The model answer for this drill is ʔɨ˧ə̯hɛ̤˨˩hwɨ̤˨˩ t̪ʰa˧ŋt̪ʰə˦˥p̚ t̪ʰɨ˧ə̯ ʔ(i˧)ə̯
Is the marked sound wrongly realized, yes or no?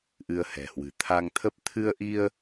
no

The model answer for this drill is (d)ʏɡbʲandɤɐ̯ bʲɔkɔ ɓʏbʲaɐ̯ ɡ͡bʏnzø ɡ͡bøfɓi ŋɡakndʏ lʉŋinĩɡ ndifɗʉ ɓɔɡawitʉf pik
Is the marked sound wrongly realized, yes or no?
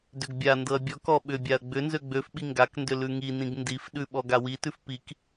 no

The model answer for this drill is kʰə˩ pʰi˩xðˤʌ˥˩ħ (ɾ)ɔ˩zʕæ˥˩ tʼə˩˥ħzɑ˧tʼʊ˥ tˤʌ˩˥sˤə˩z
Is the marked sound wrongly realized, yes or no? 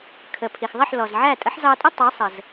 yes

